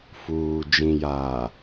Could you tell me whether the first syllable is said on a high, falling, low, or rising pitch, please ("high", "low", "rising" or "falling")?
low